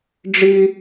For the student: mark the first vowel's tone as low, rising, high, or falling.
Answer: high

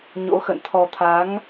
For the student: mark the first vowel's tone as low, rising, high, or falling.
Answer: rising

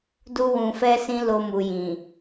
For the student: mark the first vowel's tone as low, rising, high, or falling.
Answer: high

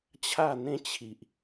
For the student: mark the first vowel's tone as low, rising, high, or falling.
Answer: falling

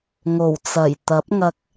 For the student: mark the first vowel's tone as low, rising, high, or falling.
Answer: low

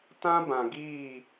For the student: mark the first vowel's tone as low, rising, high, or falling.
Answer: high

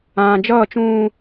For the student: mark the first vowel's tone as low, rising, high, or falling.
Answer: low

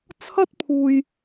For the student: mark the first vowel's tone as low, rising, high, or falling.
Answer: high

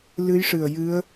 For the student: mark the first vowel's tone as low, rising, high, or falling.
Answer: rising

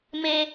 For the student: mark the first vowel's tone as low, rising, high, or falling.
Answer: high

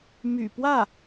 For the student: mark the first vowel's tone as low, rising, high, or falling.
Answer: low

